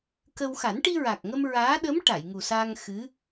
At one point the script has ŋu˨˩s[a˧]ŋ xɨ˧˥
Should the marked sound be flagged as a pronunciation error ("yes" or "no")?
no